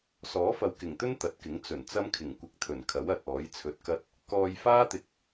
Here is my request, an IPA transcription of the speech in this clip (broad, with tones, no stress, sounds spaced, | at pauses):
s ɔː˨˥ f ɐ˨ w k ɪ˨˩ ŋ t̪ ɵ˥ n t̪ ɐ˨˥ t̚ k ɪ˨˥ ŋ t͡s ɵ˨˩ n t͡s ɐ˥ m kʰ ɪ˨˩ ŋ kʷ ɪ˧ k̚ t̪ʰ ɵ˨˩ n kʰ ɐ˨˥ w ɐ˨ t̚ ɔː˨˥ j t͡sʰ ɵ˧ t̚ k ɐ˥ t̚ | k ɔː˧ j f aː˥ t̪ ɪ˨ k̚